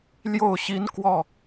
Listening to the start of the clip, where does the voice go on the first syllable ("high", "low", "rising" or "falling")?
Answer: falling